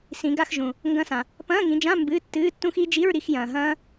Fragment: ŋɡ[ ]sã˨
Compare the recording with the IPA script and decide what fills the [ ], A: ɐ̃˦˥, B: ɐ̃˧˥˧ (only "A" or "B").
A